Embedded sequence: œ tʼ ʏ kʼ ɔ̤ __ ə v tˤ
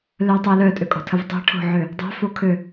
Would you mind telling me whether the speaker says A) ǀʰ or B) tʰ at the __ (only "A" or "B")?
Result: B